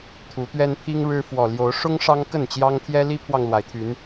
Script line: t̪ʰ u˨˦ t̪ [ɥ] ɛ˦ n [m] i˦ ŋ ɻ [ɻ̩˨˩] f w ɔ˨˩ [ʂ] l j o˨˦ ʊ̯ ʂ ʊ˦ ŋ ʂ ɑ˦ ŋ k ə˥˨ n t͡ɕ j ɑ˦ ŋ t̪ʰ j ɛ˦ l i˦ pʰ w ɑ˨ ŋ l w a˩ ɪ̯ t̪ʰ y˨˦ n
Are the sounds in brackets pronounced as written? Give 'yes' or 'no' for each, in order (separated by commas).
yes, no, no, no